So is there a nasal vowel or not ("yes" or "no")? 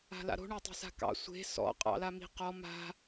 no